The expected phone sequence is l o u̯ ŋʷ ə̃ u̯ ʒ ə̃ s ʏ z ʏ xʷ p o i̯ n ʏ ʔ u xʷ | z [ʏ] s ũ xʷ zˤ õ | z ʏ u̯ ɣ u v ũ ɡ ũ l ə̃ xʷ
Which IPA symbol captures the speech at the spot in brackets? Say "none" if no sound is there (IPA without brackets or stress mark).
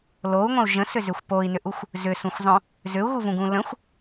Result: ʏ